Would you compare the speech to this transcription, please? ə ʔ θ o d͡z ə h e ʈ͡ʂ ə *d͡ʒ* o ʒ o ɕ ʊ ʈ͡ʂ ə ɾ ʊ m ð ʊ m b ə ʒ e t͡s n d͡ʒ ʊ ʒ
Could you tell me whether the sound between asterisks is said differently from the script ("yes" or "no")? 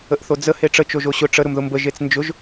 yes